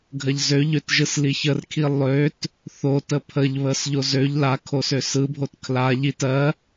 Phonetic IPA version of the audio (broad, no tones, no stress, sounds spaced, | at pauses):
ɡʱ ɜ ʎ z ø ʎ ø t ʒ ɯ s l i ç ə r kʰ i lˠ ø t | θ o t ə pʰ ə ʎ β ə s ʎ o z ø ʎ l a kʰ o s ø s ɯ bʱ o t kʰ l a ʎ i t ɜ